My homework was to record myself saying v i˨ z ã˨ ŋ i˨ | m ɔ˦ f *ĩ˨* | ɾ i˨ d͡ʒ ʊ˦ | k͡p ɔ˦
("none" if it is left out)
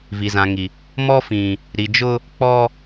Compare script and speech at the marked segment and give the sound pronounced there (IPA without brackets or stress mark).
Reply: ĩ˨